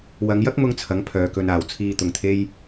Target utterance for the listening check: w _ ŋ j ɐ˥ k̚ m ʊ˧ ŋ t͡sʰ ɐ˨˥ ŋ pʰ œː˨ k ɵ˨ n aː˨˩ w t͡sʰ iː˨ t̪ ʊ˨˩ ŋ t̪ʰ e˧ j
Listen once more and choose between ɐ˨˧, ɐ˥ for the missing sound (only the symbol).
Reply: ɐ˨˧